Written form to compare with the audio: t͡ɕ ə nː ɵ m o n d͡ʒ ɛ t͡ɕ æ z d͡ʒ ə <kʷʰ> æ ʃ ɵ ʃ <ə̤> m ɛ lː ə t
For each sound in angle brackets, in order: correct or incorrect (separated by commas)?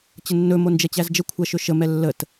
correct, incorrect